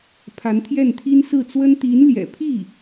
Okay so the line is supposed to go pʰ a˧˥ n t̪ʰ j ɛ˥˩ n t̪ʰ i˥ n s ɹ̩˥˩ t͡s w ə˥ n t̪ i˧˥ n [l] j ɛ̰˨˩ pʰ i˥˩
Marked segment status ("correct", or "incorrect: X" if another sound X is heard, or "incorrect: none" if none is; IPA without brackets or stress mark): correct